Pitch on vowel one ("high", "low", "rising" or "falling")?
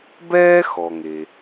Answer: high